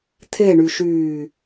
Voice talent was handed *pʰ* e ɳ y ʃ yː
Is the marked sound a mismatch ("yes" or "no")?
yes